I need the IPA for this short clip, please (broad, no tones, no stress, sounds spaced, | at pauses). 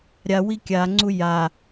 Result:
ɾʲ a w i kʲ a ŋ͡ǀ u j a